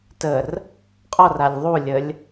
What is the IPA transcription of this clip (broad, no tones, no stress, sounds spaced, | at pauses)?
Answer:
t ə r | qʼ ɔ r a lʲ ðˤ u lʲ ə lʲ